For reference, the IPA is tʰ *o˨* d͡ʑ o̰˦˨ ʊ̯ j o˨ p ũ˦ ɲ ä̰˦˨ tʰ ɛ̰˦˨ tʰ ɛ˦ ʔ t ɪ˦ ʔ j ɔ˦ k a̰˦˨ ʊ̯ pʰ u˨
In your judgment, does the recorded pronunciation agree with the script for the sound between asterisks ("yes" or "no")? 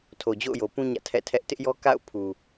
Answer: yes